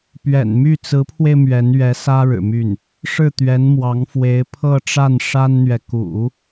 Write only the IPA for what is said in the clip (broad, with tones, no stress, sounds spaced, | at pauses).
p ɥ ɛ̰˨˩ n m y˥˩ t͡s ɹ̩˧˥ pʰ w e˧ ɪ̯ m ɥ ɛ˧˥ n ɥ ɛ˧˥ s ä˥ ɻ ɻ̩˨˩ m y˥˩ n | ʂ ɻ̩˥˩ t̪ ɥ ɛ˧˥ n m w ɑ˧˥ ŋ f w e˧˥ ɪ̯ pʰ ɤ˥˧ ʈ͡ʂ a˥˩ n ʂ a˥ n n̪ ɥ ɛ˨ k ṵ˨˩˦